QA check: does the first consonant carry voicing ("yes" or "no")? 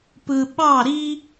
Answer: no